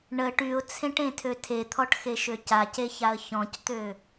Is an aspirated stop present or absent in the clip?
present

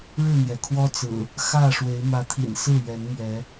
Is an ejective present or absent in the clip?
absent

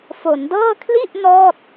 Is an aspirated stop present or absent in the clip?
present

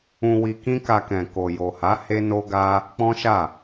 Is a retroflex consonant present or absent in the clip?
absent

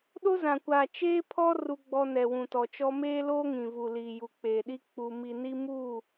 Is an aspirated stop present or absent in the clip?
present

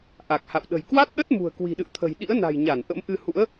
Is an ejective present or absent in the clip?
absent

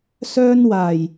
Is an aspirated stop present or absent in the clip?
absent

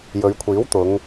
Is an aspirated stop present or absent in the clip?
present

